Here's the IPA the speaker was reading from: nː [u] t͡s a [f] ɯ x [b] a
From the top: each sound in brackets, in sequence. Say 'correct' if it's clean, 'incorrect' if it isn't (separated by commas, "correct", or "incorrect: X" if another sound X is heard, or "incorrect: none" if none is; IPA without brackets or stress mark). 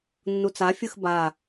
correct, incorrect: fʲ, correct